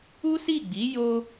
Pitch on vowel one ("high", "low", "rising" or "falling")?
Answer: high